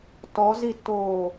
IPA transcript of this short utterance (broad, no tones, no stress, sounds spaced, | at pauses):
t ɔ z i tː oː